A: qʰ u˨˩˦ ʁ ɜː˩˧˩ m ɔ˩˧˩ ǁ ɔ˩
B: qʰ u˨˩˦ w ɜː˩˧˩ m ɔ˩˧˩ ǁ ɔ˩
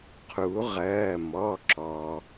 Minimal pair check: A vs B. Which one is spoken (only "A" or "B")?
A